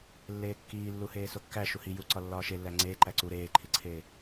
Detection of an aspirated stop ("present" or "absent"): present